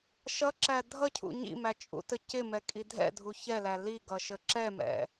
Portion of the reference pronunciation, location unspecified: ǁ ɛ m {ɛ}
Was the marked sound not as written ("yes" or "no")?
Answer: yes